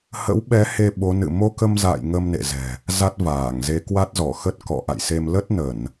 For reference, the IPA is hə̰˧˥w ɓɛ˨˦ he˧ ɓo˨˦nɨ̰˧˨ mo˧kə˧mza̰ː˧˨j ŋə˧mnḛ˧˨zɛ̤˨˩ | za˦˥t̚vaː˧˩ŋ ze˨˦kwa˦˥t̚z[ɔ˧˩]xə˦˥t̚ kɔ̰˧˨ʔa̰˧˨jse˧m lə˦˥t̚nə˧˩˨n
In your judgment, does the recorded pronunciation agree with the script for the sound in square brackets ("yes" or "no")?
yes